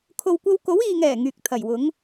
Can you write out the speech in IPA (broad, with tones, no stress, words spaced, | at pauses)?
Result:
kʰo˨wkʷɐ˧wko˨˥w iː˨ŋɛː˨˩ ŋyː˨k̚t̪ʰɐ˨˩jwʊ˨˥ŋ